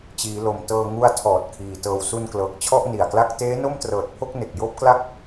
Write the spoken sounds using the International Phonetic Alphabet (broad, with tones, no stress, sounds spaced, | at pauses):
t͡ɕ iː˩˦ l o˨˩ m t ɤː˧ ŋ u˦˥ a̯ tʰ ɔː˨˩ t̚ kʰ iː˨˩ t ɤː˨˩ w s u˧ n k l ɤː˨˩ k̚ t͡ɕʰ ɔ˥˩ ʔ n i˨˩ a̯ k l a˥˩ k̚ t eː˦˥ n o˥˩ m t r ɤː˨˩ t̚ pʰ o˥˩ k̚ n e˨˩ k̚ j oː˥˩ p̚ k l a˥˩ k̚